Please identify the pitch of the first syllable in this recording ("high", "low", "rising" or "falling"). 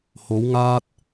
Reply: rising